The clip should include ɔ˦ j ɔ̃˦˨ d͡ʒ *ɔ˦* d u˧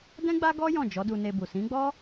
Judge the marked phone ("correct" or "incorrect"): incorrect